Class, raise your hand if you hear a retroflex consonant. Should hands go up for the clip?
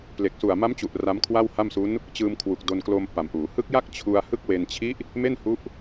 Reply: no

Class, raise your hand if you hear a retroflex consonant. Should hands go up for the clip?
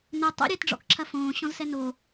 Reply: yes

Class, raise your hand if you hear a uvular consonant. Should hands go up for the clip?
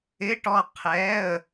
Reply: yes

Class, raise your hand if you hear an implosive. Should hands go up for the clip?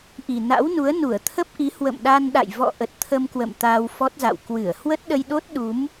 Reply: yes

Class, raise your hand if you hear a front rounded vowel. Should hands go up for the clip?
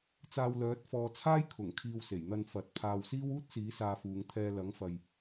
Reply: yes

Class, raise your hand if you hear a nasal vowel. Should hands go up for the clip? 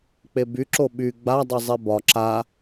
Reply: no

